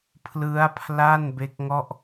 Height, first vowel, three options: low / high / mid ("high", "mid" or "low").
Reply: high